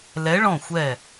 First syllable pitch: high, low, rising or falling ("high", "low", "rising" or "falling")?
rising